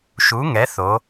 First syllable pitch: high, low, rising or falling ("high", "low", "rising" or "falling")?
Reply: rising